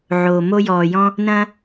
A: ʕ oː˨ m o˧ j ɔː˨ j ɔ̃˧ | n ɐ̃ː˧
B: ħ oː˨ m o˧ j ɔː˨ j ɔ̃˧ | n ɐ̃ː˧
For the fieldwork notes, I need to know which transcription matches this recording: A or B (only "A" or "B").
A